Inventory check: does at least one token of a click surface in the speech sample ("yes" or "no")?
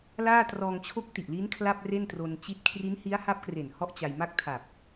no